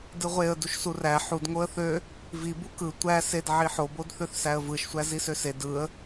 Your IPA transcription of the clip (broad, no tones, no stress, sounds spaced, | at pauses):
d ɯ ʁʷ e ə̯ d u ʃ s u r æ ħ u d ŋ o ə̯ θ ø | v i b u k ɯ tʷ æ s e d ʕ i ħ o b o d θ ø θ s æ ə̯ v ɯ ʃ sʷ æ z i s ø s e d ɯ ə̯